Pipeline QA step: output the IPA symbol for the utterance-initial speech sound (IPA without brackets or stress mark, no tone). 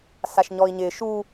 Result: s